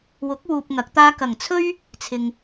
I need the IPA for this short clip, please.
w ʊ˨˥ k̚ w uː˨ p̚ ŋ ɐ˨˥ k̚ t̪ aː˥ k ɐ˨˩ ŋ t͡sʰ ɵ˥ ɥ | t͡sʰ ɪ˨ ŋ

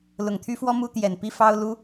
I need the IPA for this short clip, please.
l ʊ˨˩ ŋ t̪ʰ y˦ f w ɔ˦ m u˦ t̪ j ɛ˨˩ n p i˦ f ɑ˦ ʊ̯ l u˦

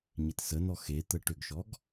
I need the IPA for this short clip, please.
ɲ ɪ t s ə n ɔ x e t̪ ə ʈ ʏ ɡ ʃ ɔ ɡ

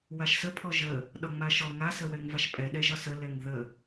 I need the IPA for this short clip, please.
w a ʃ s ə pʰ ɔ ʒ ə | ɗ ɒ ŋ͡m a ʃ ɔ ŋ a s ə w ɛ ŋ v a ʃ pʼ ɛ ɗ ɛ ʒ ɒ s ə l ɛ ŋ ð ə

